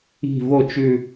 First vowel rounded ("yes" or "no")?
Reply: no